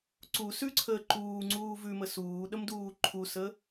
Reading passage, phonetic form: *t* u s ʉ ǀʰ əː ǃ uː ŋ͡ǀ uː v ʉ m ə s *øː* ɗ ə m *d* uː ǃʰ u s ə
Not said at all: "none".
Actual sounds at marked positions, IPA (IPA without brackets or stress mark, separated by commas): ǀ, uː, d